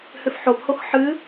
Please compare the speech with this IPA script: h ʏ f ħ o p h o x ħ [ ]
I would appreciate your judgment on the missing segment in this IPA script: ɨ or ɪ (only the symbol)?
ɨ